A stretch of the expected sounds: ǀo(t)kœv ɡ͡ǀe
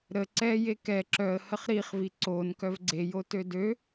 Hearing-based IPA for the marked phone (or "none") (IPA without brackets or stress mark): n